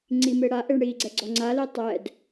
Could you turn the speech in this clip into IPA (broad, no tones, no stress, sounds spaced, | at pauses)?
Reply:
ŋ͡ǀ i m e ɽ a ʔ e ɳ ɽ i ɡ͡ǀ ɛ ɡ͡ǀ ɔ ŋ͡ǀ a l i tˤ ɛ d